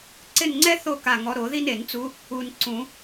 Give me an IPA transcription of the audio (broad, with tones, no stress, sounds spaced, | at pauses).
ǀ ɪ˦˨ n ŋ͡ǀ ɛ˥ θ o˦˨ k a˦˨ ŋ ɔ˧˥ ɾ o˨˩˦ ð i˥ n e˨˩˦ n t͡s u˧˥ | u˨ n ǀ ũ˨˩˦